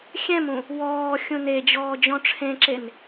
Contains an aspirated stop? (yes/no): yes